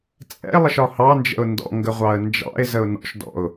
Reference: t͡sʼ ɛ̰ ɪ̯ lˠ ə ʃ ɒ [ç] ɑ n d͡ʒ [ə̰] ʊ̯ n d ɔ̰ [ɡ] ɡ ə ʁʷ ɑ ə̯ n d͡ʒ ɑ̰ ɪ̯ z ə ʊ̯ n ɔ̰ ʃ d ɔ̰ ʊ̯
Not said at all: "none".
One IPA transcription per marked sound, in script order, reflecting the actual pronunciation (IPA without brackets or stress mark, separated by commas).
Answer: h, ə̰, ŋ